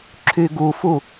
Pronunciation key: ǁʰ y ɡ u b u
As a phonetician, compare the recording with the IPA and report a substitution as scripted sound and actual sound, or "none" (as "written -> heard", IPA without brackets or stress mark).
b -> f